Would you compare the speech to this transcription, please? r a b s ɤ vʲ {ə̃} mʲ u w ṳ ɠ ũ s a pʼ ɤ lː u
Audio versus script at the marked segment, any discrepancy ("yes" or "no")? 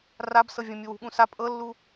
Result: no